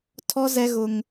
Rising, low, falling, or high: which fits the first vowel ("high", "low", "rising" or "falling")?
high